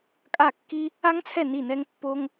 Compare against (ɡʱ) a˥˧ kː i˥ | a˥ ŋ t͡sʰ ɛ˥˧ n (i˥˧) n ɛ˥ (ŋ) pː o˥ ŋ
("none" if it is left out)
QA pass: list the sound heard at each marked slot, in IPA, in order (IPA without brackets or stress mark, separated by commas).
kʼ, i˥˧, ŋ